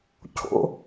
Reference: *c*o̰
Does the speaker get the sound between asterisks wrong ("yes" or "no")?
yes